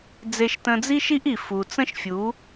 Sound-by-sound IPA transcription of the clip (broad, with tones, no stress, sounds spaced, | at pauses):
d͡z e˧ ʃ t ə̃˧ d͡z i˦ ʃ i˦ ʔ i˨ f u˨ t͡s ə̃˦ ʃ fʲ u˨˦